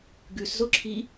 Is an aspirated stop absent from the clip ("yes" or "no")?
no